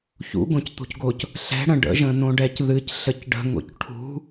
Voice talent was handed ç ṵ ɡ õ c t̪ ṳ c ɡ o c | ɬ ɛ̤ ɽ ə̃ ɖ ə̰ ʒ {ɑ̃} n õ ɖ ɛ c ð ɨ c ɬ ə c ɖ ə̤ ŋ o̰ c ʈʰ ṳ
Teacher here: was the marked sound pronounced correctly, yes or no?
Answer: no